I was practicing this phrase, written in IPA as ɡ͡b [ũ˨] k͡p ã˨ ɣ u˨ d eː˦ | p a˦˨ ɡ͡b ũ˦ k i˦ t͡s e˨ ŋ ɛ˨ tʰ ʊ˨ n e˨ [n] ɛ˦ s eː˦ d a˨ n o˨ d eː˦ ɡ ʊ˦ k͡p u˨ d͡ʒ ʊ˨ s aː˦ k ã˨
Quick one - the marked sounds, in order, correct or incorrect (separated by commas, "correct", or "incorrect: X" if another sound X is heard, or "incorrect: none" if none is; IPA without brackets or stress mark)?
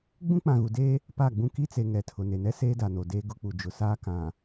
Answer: incorrect: ũ˦, correct